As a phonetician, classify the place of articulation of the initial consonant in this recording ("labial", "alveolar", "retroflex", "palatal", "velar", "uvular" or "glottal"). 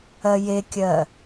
palatal